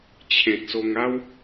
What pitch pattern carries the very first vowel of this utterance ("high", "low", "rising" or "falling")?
low